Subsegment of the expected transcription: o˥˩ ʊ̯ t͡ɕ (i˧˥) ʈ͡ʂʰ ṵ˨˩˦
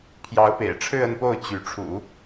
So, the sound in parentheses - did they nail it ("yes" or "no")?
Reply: no